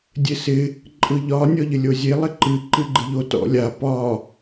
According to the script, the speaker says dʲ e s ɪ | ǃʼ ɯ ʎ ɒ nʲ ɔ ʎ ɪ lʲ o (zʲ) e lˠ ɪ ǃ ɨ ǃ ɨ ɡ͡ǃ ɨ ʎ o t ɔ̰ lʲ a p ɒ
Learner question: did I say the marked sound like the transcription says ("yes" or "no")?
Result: yes